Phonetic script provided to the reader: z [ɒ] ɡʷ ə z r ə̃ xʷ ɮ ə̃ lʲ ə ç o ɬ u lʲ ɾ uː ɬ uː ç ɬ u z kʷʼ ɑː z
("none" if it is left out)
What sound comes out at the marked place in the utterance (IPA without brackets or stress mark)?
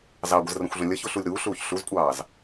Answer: ɑ